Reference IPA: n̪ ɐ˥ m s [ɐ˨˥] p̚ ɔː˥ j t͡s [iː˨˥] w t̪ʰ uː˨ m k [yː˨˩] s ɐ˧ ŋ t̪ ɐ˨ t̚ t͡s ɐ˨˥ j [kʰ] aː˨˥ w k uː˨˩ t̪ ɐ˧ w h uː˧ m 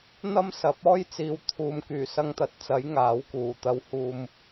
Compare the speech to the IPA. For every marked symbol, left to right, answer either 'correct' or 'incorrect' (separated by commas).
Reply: correct, incorrect, correct, incorrect